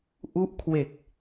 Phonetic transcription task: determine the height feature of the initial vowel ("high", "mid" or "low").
high